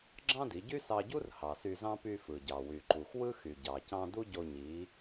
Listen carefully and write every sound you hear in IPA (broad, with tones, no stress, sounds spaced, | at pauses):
ɡ͡ǁ ɑ̃˥ d i˩˧ ɟ y˥ s ɑ˧ ɟ u˥ r h ɑ˩ s y˧ z ɑ̃˥ p y˧ f ɯ˩ ɟ ɑ˩ w y˩ ǃ u˩ x w ɯ˥ x y˩ ɟ ɑ˩ c ɑ̃˧ d u˥ ɟ o˧ ɲ i˩˧